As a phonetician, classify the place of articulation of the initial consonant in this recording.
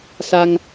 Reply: alveolar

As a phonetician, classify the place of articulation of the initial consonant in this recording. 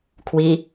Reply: velar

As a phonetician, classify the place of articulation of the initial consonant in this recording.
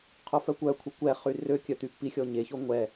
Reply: uvular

